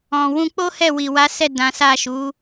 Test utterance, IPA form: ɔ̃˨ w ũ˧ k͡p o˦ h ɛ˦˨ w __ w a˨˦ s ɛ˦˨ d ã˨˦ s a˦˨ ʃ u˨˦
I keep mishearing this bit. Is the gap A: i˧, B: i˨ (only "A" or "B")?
B